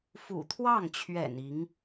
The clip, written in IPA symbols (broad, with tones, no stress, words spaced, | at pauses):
fṵ˨˩t̪ʰwɑ˥˩ŋt͡ɕʰɥɛ̰˨˩n i˧˥ŋ